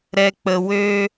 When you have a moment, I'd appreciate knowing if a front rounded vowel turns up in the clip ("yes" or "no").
yes